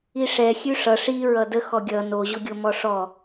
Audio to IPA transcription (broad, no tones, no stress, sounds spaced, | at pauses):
i ʂ ɛ xʲ ʉ ʂ ʌ ʂ i ɹ ʌ d ə x ɔ ɡʲ ʌ n o ʑ o ɡʲ o m ɔ ʂ ɔ